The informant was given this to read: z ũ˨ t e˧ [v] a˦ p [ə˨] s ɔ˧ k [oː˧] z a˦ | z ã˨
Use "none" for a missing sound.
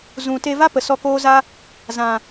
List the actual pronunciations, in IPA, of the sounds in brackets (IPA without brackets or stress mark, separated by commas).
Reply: v, ə˨, oː˦